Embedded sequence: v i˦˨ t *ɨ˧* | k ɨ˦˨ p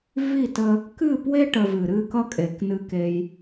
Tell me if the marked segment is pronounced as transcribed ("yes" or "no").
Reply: no